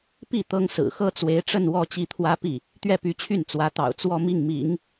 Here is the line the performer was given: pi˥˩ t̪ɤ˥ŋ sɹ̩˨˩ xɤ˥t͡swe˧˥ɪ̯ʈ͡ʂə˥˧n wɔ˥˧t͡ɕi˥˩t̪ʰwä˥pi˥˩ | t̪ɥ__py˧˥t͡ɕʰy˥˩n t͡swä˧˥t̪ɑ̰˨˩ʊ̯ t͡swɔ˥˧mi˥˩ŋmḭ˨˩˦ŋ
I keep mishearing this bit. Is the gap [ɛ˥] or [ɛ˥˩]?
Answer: ɛ˥˩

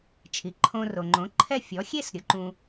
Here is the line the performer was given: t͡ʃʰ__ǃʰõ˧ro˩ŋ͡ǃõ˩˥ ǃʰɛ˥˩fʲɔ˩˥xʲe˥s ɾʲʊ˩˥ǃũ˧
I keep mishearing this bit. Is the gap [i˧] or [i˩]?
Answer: i˩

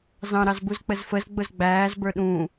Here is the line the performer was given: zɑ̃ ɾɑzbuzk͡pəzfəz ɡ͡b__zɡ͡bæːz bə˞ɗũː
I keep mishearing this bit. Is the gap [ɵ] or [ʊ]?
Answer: ʊ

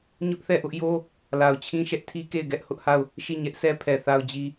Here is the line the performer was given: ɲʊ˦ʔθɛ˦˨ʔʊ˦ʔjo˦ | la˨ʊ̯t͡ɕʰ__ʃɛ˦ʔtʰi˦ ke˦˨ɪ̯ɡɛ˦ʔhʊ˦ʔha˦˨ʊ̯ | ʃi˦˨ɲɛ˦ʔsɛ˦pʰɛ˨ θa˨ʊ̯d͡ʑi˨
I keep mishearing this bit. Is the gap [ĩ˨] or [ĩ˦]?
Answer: ĩ˦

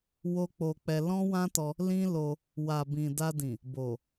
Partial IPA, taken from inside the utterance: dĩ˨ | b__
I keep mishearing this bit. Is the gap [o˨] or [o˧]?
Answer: o˨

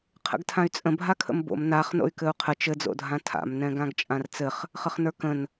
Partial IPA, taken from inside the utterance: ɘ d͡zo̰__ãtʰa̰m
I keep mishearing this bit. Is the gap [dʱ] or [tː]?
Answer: dʱ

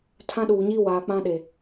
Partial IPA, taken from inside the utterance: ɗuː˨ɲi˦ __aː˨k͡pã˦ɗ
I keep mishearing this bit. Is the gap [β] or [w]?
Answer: w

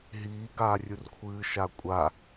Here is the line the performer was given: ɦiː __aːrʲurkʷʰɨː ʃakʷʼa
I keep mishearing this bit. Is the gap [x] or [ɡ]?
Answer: ɡ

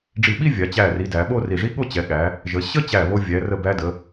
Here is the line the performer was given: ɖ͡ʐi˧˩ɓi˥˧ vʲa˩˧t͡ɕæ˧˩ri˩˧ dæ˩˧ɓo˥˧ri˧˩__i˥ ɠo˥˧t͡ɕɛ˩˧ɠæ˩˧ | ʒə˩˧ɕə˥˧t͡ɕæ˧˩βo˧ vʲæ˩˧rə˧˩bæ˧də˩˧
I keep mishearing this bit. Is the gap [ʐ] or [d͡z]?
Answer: ʐ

